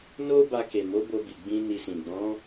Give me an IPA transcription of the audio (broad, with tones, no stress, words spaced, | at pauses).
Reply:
no˦ba˧ ke˨mo˨˦bo˧bi˨ ɡ͡bĩ˧ ni˧sĩ˨ ɡ͡bɔ̃˨˦